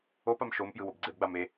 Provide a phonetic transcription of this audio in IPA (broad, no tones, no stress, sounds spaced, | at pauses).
o p a m ʃ o m p j ɯ w o b ɡ͡ǀ e b ɡ͡b a m e